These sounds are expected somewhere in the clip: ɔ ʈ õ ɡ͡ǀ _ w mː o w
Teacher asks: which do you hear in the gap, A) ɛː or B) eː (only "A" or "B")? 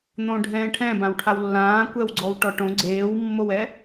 B